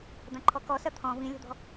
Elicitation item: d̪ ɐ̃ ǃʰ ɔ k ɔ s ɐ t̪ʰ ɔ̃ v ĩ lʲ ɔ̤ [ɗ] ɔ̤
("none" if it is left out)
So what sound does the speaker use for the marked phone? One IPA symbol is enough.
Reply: d̪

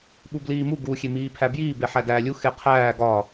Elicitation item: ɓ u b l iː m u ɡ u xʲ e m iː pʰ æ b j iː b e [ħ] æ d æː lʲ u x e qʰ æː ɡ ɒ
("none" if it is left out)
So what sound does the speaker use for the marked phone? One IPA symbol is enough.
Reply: ħ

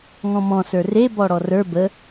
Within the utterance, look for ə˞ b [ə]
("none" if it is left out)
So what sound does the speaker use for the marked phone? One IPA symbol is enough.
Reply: ə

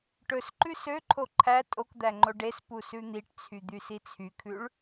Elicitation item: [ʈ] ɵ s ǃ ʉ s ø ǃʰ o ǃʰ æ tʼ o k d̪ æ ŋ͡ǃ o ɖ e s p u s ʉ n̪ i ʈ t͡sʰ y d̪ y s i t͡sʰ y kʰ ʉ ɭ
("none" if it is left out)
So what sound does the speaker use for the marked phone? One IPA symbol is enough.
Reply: ʈ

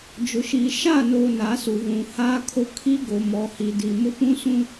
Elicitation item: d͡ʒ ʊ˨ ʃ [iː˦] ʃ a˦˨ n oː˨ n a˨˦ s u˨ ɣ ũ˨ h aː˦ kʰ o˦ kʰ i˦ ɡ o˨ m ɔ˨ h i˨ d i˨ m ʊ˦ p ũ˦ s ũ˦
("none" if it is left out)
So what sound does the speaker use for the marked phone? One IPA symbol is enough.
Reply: iː˨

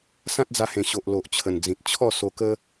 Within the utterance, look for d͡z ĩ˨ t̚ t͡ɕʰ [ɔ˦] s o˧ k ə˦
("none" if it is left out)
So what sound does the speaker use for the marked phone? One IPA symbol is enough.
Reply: ɔ˥˧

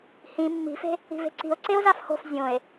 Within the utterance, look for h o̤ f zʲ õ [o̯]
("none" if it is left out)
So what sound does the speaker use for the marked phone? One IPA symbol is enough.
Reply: e̯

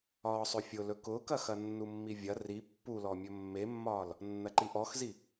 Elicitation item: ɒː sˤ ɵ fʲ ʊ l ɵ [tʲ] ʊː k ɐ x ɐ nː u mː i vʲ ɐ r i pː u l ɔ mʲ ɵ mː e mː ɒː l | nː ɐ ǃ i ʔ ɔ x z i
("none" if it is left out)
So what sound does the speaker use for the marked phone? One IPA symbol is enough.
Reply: k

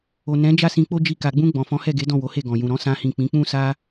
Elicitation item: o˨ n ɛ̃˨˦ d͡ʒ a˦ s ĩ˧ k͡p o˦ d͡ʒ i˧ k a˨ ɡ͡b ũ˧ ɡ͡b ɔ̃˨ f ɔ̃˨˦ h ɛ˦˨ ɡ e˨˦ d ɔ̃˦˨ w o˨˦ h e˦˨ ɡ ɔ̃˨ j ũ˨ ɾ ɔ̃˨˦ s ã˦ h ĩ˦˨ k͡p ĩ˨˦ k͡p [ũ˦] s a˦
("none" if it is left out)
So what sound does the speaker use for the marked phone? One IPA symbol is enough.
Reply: ũ˦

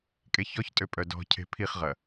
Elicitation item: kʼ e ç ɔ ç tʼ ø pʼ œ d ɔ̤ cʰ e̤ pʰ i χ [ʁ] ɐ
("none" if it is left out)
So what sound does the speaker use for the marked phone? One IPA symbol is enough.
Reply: ʁ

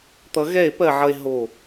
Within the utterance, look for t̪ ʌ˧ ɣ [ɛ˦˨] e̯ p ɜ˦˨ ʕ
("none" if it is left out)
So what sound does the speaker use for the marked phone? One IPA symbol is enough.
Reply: ɛ˦˨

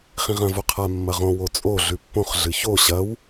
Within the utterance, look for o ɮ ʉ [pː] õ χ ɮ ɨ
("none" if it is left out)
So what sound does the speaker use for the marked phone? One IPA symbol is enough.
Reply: pː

